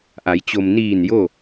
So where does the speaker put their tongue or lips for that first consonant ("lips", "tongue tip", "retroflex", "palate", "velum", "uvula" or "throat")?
throat